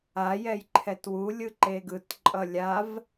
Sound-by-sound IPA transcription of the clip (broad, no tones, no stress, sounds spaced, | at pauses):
a j ɛ j ǃʰ ɛ t w u lʲ ɯ ǃ e ɡ ɯ t ǃʼ ʌ lʲ a v